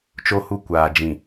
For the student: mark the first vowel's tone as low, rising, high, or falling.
high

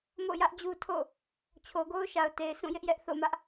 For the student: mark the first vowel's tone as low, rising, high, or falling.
falling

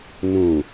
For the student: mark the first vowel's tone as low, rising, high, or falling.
low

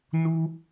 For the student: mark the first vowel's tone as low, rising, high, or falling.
high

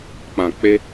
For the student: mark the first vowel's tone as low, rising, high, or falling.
low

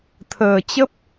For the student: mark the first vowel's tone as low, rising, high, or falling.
low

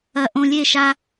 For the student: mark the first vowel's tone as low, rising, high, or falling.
low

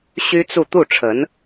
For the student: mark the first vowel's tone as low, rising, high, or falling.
high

